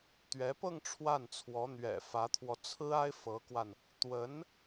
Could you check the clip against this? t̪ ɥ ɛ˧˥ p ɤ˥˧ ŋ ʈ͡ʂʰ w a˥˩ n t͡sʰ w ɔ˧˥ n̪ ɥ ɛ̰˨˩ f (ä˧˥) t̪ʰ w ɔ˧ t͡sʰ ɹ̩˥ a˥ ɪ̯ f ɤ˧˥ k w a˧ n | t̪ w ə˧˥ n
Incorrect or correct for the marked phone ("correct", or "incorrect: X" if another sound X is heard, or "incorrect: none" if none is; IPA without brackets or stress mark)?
correct